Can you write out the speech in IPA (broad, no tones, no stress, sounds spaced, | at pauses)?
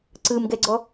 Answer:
ǀ ɯ m ɡ ɛ ɡ͡ǀ ɔ